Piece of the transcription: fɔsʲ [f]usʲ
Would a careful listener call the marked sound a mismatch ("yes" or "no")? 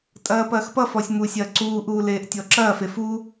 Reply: yes